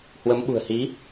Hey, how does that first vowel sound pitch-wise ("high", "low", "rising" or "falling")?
rising